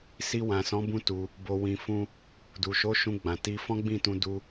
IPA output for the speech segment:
s i˧ w ã˨ s ɔ̃˨˦ b ũ˦ t u˧ | b o˧ w ĩ˧ f ũ˦ | d u˨ ʃ o˨˦ ʃ ũ˧ ɡ͡b ã˨ t i˧ f ɔ̃˦ ɡ͡b ĩ˦˨ t ũ˧ d u˦

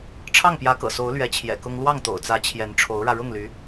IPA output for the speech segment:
ʈ͡ʂʰ ɑ˥˩ ŋ p j ä˧˥ k ɤ̰˨˩ s o˧˥ ʊ̯ l ɥ ɛ˧˥ t͡ɕʰ j ɛ̰˨˩ k ʊ˥ ŋ l w ɑ˥˩ ŋ t̪ o̰˨˩ ʊ̯ t͡s ä˧˥ t͡ɕʰ j ɛ˧˥ n ʈ͡ʂʰ o˧˥ ʊ̯ ɻ ä˧ ɻ ʊ˥˩ ŋ l y˧˥

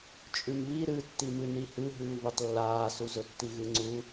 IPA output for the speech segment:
t͡ʃʼ ʉ m β i ɾ ɨ tː i m ɨ n i h ɨ ɦ ʉː v ʉ tˤ lː aː s u z ɵ tː i ɣ ɨ ŋ͡ǀ u

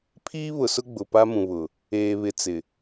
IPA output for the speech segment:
pʰ iː˦ β ʊ˨ s ʊ˦ ɡ͡b ʊ˨ p a˦ m ũ˨ β ʊ˨ | eː˨ β ɪ˨ t͡s ɪ˨

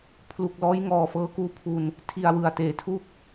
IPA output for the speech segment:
pʰ l u˨˩ k̚ l ɔː˦˥ j ŋ ɔː˨˩ f ɤː˦˥ k uː˦˥ pʰ u˧ n | tʰ i˧ a̯ w ɯ˨˩ a̯ t eː˩˦ tʰ u˥˩ k̚

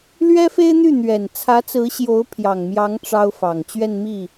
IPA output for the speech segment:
l ɥ ɛ˥ f e˥ ɪ̯ n̪ y˥˩ n̪ ɥ ɛ˨˩ n t͡sʰ ä˧˥ t͡s ɹ̩˧˥ ɕ j o˧˥ ʊ̯ pʰ j ɑ˨˩ ŋ m j ɑ˧˥ ŋ ʈ͡ʂ ɑ˥ ʊ̯ f ɑ˨˩ ŋ t͡ɕ ɥ ɛ˥˧ n m i˥˩

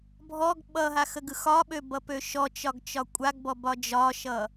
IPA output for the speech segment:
bʱ ɔ ɡ ɓ ʌ ɦ a x ə ɡ ɯ x ɒ ɓ ø b ʌ p ø ʃ ɔ t͡ʃ ɒ ɡ t͡ʃ ɒ kʷʼ a ɡ b ɔ b ɒ d͡ʒ ɒ ʃ ʌ

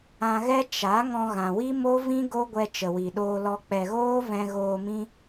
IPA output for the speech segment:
ã˧ ɣ ɛ˦ t͡ʃ a˨˦ ŋ ɔ̃˧ ɣ ã˨ w i˦ m o˦ v ĩ˦ ɡ o˦ ɡʷ ɛ˧ t͡ʃ ə˨ w i˨ ɗ oː˧ l ɔ˧ k͡p ɛ˨ ɣ oː˦ v ɛ̃˧ ɣ oː˧ m ĩ˦

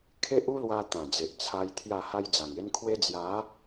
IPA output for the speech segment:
kʰ e˦ ʔ u˦ l w a˧ t̪ ã˨˩ d͡z e˨ ʔ t͡sʰ a˧ j t̪ʰ j a˥˧ h a˦ j d͡z a˨˩ ŋ e˦ n kʰ w e˦ d͡z j a˨˦

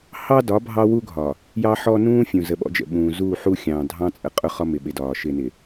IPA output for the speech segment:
h ɑ˦ d ɒ˨˦ bʱ ɑ˦ w u˦ ɡʱ ɒ˨ | j ɑ˦ ħ ɔ˦ n ũː˦ fʲ ũ˨ z ə˨ ɓ ɔ̰˦ d͡ʒ ə̰˨ ɓ ũː˨ z uː˦˨ ħ u˦ xʲ ɑ̃ː˨ dʱ ɑ̃˦ t͡sʼ ə˨ qʼ ʊ˦ χ ɒ˦ m ɪ˨ ɓ ɪ˨ d ɒː˨ ʃ ɪ˨ n ɪ˨

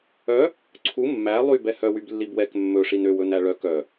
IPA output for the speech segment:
œ | ǀʰ u mː æ lˠ y b ɛ h œ w y b lː i b w ɛ k mː ɵ ʂ i n ø w ɵ n æ ɭ œ k œ

